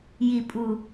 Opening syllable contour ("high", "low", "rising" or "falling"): low